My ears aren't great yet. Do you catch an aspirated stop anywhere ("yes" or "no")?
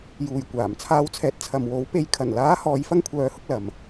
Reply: yes